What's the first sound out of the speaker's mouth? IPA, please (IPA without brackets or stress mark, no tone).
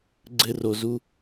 ɡ͡ǀ